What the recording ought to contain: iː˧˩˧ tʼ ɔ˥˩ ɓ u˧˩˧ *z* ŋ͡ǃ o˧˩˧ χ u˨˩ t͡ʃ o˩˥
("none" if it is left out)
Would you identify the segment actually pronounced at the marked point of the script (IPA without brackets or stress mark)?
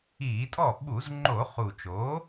z